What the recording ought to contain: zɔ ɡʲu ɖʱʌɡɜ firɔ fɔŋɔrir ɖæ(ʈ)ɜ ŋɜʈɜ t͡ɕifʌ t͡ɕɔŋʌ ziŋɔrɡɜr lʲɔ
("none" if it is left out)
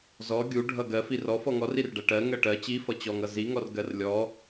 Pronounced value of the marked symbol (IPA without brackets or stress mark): ʈ